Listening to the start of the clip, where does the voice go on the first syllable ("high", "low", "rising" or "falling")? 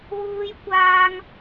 high